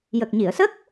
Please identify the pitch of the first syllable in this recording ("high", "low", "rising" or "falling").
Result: low